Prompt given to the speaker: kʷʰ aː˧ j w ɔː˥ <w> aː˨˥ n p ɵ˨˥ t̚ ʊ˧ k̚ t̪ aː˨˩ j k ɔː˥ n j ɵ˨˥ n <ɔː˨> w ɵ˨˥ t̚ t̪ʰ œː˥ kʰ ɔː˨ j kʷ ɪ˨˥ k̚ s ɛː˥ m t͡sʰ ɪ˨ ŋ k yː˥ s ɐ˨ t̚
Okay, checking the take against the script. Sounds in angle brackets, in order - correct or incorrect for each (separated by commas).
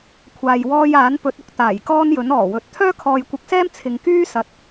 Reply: incorrect, incorrect